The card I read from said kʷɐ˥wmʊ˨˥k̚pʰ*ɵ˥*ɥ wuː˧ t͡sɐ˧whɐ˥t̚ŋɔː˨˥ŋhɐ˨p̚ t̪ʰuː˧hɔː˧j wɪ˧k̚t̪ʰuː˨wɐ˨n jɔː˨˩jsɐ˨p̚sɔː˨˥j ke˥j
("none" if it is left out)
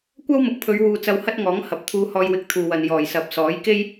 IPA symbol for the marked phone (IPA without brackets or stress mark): ɵ˨˧